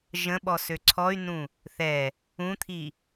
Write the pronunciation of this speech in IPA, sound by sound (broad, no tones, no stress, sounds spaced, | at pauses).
ʒ ə̃ ɓ ɔ s ø ǀʰ ɔ y̯ n ũ | θ ɛ | ũ t̪ʰ i